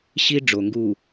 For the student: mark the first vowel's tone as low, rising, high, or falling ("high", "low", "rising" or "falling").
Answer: high